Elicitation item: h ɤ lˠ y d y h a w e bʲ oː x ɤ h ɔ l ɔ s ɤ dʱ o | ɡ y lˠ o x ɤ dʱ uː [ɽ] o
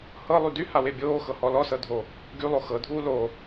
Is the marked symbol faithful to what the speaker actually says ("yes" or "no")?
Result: no